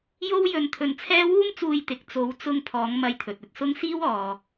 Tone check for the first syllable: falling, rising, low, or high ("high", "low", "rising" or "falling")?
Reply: high